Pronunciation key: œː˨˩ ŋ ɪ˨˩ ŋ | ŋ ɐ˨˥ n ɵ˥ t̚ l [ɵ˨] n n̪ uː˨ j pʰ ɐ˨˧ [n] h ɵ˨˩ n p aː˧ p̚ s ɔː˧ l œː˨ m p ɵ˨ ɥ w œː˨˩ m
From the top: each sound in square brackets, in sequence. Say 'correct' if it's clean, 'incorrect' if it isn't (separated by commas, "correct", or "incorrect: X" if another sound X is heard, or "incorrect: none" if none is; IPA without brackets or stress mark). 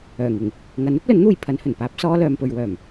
incorrect: ɵ˨˥, correct